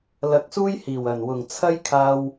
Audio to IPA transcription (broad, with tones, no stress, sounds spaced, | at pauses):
l ɐ˧ k̚ s uː˥ j h iː˨˩ w ɐ˨˩ n w ʊ˨˩ ŋ t͡sʰ ɐ˥ j kʰ aː˧ w